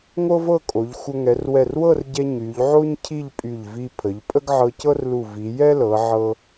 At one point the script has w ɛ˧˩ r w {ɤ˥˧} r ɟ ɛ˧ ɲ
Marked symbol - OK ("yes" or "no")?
yes